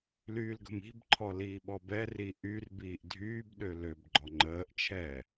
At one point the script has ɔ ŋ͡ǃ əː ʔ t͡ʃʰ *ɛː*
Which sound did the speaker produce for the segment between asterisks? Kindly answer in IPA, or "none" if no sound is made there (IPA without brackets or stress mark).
ɛː